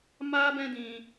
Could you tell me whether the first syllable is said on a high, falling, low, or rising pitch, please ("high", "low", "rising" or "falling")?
high